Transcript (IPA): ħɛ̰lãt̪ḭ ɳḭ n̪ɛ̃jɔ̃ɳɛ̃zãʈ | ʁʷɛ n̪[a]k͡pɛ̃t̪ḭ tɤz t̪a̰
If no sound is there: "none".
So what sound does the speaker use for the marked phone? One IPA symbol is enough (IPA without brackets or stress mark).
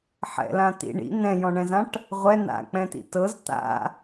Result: a̰